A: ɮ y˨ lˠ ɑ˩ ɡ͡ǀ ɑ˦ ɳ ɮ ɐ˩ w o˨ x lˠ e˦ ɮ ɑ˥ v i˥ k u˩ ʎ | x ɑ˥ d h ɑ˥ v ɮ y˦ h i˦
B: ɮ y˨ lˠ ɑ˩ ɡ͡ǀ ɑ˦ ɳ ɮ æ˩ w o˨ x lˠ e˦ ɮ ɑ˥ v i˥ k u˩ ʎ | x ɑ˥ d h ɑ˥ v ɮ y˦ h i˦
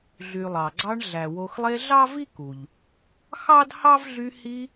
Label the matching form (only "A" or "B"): B